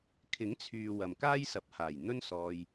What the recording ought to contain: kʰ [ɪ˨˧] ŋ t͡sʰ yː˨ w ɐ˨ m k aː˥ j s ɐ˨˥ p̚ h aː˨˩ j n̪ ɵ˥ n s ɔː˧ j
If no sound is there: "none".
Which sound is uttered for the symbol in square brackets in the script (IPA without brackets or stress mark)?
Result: ɪ˨˥